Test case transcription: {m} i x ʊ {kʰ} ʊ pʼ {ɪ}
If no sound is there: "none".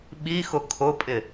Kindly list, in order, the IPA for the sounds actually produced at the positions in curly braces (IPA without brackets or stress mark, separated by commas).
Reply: ɓ, kʰ, ɪ